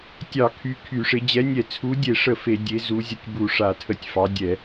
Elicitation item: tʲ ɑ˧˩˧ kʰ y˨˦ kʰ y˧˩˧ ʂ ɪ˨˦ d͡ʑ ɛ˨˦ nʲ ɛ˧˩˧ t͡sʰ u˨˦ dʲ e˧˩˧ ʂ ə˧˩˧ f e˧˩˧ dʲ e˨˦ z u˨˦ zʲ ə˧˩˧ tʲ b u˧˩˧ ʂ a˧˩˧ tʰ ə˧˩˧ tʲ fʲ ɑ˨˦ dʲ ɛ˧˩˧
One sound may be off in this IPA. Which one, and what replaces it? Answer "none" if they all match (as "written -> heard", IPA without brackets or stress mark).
fʲ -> f